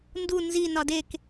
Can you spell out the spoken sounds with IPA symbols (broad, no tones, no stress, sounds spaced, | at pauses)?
n d u n z i n ɒ d e k